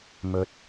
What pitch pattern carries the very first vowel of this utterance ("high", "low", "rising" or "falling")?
rising